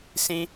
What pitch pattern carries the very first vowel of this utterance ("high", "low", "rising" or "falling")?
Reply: high